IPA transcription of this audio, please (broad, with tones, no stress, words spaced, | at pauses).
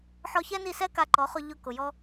ħɔ˧çɛ˦ni˦˨sɛ˦ ka˧ǃɔ˨˦χʊ˧ ʎʊ˧ kʊ˨jɔ˦